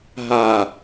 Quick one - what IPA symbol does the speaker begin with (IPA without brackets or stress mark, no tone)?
ɦ